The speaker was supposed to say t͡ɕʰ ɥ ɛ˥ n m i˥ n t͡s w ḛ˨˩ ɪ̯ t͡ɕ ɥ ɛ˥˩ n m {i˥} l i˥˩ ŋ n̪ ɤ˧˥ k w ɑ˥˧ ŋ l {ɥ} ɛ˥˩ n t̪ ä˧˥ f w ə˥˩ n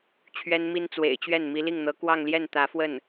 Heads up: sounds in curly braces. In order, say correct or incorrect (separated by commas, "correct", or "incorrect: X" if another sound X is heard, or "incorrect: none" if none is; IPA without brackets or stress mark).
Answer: incorrect: i˧˥, incorrect: j